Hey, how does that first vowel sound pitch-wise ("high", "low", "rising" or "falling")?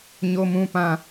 high